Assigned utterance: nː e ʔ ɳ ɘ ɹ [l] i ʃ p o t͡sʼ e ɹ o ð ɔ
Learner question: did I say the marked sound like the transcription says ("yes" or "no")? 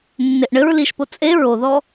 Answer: yes